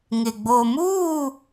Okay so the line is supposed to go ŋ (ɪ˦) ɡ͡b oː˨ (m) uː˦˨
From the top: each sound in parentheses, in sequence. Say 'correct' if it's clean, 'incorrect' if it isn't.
incorrect: ɪ˨, correct

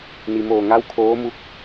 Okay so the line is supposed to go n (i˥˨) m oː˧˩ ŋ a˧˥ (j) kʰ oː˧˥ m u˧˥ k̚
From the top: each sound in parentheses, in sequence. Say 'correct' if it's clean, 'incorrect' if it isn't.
incorrect: i˩, incorrect: w

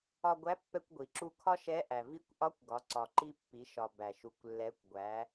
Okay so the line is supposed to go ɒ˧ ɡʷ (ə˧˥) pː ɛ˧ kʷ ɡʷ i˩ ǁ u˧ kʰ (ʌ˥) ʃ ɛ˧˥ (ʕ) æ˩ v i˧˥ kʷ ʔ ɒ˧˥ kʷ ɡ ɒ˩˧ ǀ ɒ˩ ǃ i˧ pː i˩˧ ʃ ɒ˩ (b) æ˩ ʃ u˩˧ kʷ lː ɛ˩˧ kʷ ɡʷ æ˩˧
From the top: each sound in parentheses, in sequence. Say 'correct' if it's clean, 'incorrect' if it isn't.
incorrect: æ˧˥, incorrect: ɒ˥, incorrect: ʔ, correct

